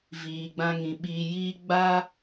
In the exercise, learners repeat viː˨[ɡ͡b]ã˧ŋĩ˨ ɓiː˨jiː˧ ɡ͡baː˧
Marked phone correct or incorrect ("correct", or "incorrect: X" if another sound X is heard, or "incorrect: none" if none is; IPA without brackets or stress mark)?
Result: correct